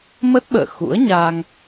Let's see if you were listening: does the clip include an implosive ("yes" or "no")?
yes